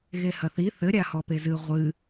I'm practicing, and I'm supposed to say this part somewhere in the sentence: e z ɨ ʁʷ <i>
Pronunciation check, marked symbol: incorrect: ɨ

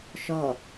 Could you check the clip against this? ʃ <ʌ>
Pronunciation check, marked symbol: incorrect: ɔ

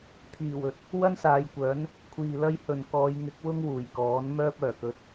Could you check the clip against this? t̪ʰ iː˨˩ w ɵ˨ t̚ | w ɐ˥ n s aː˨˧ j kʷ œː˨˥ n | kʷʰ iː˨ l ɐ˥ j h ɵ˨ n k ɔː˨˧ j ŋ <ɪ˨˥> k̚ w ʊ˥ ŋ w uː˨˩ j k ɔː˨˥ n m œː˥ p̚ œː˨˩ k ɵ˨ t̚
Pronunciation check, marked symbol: correct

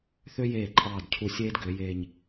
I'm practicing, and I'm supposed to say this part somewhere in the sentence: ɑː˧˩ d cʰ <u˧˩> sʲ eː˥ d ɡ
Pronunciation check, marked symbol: correct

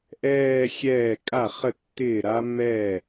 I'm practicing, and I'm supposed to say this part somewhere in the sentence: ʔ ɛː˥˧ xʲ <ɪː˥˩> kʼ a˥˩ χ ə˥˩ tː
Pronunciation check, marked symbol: incorrect: ɛː˥˩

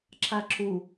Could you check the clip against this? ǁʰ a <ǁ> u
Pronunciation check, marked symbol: correct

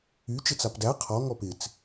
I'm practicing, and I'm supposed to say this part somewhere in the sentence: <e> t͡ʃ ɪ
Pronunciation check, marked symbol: incorrect: y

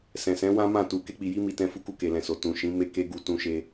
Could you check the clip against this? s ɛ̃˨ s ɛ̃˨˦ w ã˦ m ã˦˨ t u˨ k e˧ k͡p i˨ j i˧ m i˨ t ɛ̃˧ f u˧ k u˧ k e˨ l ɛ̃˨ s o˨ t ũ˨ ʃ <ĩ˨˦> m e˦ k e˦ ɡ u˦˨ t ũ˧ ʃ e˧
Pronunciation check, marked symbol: correct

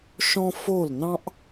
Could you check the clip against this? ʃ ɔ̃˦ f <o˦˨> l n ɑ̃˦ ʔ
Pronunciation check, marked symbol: correct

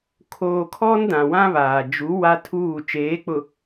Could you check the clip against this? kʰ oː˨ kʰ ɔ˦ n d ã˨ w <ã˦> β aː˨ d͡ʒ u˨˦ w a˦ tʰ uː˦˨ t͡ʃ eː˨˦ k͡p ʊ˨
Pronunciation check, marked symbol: correct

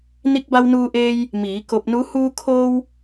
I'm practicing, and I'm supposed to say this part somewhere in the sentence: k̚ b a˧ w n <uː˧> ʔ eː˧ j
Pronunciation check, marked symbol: correct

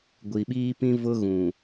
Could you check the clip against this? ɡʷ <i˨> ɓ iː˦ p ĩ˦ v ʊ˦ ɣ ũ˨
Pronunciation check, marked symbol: correct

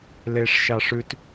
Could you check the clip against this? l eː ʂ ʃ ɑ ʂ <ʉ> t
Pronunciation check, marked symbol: correct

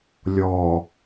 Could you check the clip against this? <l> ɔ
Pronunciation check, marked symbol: incorrect: lʲ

